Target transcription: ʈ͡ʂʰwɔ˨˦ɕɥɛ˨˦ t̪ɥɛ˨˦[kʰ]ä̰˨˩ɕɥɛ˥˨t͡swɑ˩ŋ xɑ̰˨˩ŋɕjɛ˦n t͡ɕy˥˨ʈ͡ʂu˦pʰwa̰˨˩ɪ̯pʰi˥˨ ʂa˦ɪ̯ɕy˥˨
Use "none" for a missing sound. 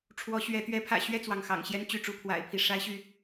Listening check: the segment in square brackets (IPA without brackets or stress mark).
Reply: pʰ